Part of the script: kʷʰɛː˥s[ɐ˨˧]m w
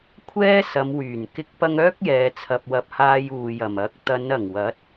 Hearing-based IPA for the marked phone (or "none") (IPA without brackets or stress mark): ɐ˨˧